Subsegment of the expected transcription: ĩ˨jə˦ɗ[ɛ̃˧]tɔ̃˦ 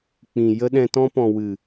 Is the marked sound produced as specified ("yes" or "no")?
yes